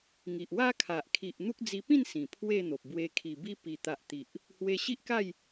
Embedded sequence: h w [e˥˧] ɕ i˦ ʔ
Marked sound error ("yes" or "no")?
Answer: yes